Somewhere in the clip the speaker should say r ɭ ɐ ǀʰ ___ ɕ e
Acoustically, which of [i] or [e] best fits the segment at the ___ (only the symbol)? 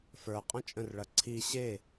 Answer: i